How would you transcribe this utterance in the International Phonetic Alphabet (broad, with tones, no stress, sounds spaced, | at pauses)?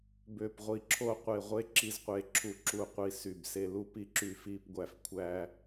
b ø˦˨ p ʁʷ i˦˨ ǁʰ o˥ qʷ e˦˨ ʁʷ e˥ ǁ i˥ z qʷ e˦˨ ǁʰ u˦˨ ǁ u˦˨ qʷ i˦˨ s y˦˨ b s e˥ l u˥ p i˥ ǁ y˦˨ f i˥ p ɡʷ æ˦˨ f kʷʰ æ˥